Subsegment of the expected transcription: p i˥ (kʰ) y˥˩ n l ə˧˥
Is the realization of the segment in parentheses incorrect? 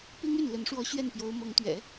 yes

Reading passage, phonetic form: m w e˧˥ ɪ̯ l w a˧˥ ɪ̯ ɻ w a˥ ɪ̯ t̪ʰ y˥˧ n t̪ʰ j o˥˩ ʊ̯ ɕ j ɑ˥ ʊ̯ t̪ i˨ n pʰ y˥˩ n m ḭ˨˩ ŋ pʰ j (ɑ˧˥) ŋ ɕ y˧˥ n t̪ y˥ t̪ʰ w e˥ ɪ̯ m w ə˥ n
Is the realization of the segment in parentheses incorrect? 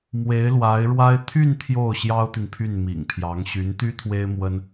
no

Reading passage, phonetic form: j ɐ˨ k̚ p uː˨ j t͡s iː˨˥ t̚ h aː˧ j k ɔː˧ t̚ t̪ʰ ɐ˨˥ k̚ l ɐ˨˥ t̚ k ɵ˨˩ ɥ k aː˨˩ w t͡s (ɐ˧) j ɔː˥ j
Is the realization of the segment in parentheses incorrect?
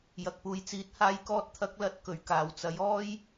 yes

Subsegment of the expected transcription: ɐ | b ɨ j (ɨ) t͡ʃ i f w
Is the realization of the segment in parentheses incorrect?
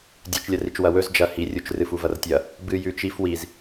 yes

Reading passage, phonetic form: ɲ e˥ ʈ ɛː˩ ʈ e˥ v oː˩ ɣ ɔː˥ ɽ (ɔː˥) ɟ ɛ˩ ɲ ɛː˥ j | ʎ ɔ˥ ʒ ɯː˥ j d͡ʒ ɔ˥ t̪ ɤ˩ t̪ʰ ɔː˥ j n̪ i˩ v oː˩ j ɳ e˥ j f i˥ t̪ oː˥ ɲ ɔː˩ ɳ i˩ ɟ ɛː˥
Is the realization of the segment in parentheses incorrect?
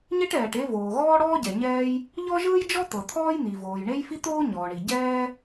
no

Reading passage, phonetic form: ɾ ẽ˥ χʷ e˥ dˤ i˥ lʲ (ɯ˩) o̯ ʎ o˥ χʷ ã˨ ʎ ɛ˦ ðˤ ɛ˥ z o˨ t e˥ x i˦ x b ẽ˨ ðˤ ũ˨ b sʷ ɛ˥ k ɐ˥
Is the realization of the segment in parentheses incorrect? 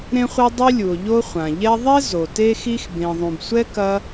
yes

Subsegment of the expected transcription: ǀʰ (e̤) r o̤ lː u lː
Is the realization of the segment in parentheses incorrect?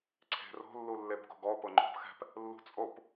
no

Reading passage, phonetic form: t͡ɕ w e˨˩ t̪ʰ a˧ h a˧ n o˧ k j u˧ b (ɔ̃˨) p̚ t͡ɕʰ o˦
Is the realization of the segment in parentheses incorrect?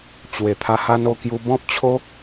yes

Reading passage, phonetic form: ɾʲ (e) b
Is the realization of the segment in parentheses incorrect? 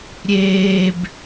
yes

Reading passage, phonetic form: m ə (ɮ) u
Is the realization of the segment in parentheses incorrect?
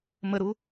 yes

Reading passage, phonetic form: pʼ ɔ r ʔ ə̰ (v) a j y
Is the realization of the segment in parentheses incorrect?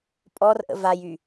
no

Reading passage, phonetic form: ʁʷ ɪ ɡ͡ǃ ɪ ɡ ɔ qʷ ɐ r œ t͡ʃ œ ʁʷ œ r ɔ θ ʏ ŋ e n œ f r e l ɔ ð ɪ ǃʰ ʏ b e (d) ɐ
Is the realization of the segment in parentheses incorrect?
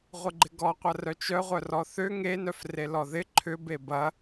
yes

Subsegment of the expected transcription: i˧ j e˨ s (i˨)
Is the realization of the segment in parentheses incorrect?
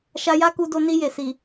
no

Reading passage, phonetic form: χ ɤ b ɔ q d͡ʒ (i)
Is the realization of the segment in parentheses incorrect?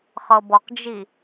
no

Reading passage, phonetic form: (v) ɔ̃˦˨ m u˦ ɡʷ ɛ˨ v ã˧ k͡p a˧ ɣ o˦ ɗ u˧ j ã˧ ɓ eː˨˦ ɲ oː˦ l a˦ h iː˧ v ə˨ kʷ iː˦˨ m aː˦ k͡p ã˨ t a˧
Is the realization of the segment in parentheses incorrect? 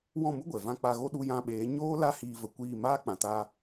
yes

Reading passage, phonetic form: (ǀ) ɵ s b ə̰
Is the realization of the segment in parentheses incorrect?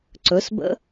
no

